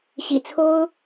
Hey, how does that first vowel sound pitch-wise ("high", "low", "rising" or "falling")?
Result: low